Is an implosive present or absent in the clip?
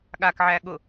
present